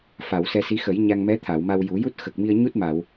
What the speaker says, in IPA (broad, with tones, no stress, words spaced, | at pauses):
fa˨˩˨w sɛ˧si˧˥ xə˨˩˦j ɲa˧ŋmɛ˧˥ t̪ʰa˨˩˨wma˧wju˨˩˦ ju˦˥t̚xə˨˩k̚mi˧ə̯ɲu˦˥t̚ ma˨˩˨w